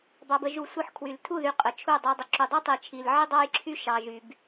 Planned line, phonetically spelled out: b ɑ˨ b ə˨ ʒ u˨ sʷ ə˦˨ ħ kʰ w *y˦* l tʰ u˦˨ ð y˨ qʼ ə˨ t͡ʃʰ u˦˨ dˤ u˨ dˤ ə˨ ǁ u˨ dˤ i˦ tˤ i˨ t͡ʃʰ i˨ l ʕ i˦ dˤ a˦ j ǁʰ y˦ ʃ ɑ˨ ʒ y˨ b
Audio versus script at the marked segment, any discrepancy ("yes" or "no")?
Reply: yes